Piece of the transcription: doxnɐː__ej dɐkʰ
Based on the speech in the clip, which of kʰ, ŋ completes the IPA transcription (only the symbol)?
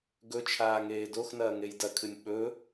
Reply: ŋ